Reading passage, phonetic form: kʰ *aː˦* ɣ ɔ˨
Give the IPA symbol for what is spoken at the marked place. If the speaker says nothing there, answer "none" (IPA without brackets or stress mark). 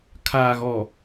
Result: aː˨